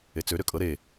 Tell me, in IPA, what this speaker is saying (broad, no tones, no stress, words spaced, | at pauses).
et͡sø ɾøkʼɤ ɾe